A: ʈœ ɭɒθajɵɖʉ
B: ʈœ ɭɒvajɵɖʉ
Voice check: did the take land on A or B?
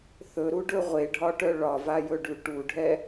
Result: B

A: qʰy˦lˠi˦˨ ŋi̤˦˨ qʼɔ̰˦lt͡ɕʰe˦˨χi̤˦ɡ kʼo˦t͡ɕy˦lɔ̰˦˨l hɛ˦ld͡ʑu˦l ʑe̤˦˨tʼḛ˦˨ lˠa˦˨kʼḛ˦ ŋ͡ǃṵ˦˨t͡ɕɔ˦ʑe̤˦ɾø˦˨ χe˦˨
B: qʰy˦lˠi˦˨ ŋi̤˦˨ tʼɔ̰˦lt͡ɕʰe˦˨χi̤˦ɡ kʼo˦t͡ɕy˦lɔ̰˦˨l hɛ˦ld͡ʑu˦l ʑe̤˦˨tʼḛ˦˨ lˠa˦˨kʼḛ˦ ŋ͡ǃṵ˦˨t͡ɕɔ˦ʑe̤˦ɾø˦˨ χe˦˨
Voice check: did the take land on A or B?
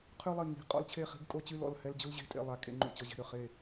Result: A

